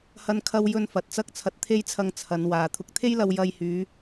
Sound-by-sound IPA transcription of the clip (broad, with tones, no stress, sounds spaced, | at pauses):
h ɐ˥ n kʰ ɐ˥ w j ɵ˥ n f ɐ˨˥ t̚ t͡s ɐ˥ k̚ t͡sʰ ɐ˧ t̚ t̪ʰ e˥ j t͡sʰ ɐ˧ ŋ t͡sʰ ɐ˨˧ n w aː˨ t̪ʰ ʊ˨ k̚ t̪ʰ e˥ j l ɐ˧ w j ɐ˧ j h yː˨˧